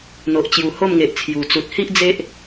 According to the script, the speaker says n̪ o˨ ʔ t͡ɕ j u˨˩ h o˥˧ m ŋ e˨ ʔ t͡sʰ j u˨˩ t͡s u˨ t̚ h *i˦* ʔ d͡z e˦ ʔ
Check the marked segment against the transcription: correct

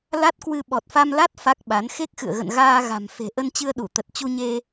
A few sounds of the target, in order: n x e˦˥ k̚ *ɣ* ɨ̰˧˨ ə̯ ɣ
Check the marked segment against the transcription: incorrect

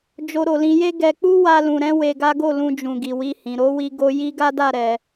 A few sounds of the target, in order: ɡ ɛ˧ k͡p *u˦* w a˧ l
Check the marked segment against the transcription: correct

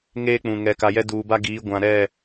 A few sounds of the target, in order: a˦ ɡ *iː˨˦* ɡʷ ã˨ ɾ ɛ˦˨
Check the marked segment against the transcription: correct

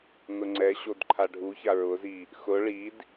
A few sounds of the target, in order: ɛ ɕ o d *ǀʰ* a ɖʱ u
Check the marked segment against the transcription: incorrect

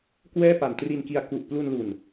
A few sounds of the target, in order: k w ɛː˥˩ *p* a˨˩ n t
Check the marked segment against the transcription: correct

